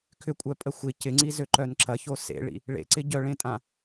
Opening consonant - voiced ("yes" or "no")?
no